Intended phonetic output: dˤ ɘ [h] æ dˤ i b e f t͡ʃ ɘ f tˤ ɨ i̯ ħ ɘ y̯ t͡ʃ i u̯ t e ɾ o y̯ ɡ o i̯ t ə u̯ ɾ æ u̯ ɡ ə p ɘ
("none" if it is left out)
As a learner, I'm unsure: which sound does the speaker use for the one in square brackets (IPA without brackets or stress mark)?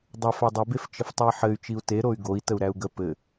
f